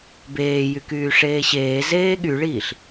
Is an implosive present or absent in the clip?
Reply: present